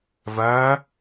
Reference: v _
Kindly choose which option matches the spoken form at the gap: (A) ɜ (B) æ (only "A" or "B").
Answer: A